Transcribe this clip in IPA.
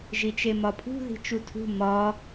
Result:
ʒ i t͡ʃ e m ɒ pʰ ṳ ð i̤ t͡ʃ u tʰ ṳ m ɒ

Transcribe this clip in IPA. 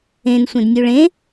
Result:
ẽ n sʷ ẽ d nʲ u ɭ ẽ

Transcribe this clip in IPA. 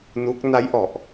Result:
n u˦˥ k̚ n a˦˥ j ʔ ɔ˨˩ ʔ

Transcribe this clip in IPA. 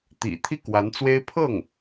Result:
t̪ ḭ˨˩ t̪ʰ i˥˩ k w a˧˥ n t͡s w e˥ ɪ̯ pʰ ɤ˥˩ ŋ

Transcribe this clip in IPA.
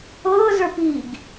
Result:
ɤː z ə˞ p i ɡ

